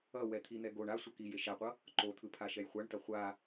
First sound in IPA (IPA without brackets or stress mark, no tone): ʌ